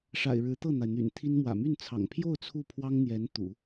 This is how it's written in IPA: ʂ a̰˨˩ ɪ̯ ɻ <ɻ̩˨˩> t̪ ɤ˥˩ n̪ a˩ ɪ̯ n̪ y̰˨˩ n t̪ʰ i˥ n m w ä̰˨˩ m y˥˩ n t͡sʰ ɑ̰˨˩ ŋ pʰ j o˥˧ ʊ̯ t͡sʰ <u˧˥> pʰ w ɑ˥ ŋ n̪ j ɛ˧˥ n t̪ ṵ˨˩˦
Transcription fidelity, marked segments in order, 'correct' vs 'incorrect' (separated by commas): incorrect, incorrect